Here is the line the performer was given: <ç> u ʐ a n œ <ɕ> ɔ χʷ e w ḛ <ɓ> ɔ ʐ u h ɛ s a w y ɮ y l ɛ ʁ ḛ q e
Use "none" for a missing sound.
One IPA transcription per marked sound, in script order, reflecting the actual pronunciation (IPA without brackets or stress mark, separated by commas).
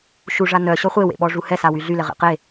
ʃ, ɕ, ɓ